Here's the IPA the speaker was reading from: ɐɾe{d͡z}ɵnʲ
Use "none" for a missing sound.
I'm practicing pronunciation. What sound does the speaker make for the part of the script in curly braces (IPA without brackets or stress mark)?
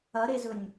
z